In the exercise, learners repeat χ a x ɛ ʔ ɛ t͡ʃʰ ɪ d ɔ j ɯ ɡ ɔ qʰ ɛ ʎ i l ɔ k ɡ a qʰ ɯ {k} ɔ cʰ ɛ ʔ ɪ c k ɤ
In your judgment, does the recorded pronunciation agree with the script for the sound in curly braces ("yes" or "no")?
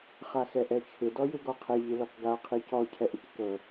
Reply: no